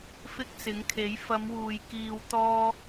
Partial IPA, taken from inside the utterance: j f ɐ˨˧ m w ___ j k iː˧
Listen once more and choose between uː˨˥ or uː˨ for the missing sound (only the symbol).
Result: uː˨